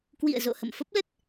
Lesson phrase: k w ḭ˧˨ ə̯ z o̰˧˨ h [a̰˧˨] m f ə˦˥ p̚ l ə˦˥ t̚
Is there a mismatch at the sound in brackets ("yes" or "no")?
yes